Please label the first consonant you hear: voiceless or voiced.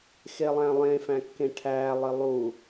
voiceless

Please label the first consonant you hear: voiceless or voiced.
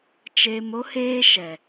voiceless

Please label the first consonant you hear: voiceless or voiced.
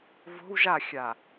voiced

